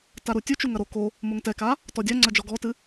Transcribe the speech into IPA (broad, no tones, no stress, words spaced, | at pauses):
taɾutʲut͡ʃu ŋɐɾo ko | moŋtɛka | tɔdʲa ŋ͡ǀɐd͡ʒɔɡɔtɨ